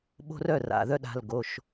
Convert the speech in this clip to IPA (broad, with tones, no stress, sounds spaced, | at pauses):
ɓ o̤˧ r œ˩˧˩ r a̰˩˧˩ ð œ˧ ɗ a̤˩˧˩ l ɡ o˩˧˩ ʃ